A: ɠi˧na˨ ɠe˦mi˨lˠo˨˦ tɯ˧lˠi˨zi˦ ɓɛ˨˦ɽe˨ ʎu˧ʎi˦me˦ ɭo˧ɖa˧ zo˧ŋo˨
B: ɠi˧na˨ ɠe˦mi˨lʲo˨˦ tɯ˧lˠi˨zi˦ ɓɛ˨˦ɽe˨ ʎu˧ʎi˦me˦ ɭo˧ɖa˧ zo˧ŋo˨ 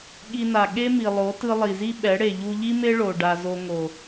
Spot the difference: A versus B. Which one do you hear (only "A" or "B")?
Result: A